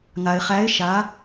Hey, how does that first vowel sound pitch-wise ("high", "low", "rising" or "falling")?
low